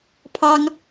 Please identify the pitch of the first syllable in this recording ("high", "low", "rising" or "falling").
high